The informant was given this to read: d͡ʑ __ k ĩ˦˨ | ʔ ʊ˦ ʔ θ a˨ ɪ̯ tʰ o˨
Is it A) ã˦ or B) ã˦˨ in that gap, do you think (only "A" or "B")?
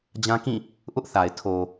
A